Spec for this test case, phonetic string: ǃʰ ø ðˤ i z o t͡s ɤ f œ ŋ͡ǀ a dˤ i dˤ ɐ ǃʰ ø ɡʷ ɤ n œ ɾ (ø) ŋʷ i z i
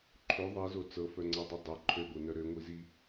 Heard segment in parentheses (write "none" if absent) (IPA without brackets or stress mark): ø